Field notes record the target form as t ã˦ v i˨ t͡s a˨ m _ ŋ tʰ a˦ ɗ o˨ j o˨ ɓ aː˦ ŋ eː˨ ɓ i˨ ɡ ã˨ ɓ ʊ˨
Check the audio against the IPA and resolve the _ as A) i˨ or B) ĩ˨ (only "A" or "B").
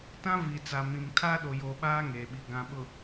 B